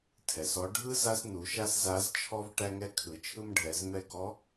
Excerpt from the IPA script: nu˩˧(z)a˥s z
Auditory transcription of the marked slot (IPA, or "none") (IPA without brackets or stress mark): ʃ